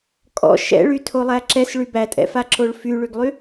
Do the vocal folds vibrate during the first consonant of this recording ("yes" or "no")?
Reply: no